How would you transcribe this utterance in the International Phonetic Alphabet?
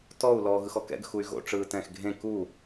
t ɔ u̯ l ɔː ɣ ɯ x ɔ k ɛ̰ ɡ x u y̯ ɣ o̰ ʈ͡ʂ ɯː t ɛ̃ː x ɡʱ ẽ k u

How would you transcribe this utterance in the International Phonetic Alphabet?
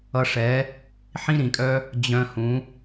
ʌ˧ ʂ ɛ˨˦ | ħ ĩ˦ ɾ ĩ˨ kʼ œ˦ | d͡ʑ œ̃˧ h ũ˨˦

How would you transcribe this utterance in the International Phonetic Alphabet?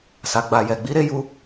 s a˨ ɡ͡b a˨ j ɛ˨ ɡ͡b i˨˦ ɾ e˦ j u˧

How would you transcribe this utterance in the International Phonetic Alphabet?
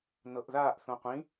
n ɤ ʔ ð aː ʔ θ õ qʷ ĩ

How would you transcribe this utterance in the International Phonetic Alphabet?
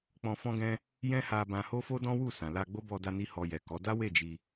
k͡p ɔ̃˧ f ɔ̃˦ ɡ ɛ̃˦ | j ɛ̃˦ h a˧ b ã˧ h o˦ f o˦ d ɔ̃˦ w u˦˨ s ã˨ l a˧ ɡ͡b o˦ b ɔ˧ d a˧ n i˦ h ɔ˧ j ɛ˨ k ɔ˨˦ d a˦ w e˦˨ d͡ʒ i˧

